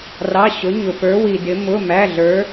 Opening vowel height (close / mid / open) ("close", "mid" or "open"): open